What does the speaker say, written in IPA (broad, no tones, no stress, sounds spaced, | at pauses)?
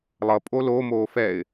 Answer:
lˠ ʌ pʼ o l o m oː f ɛ ɪ̯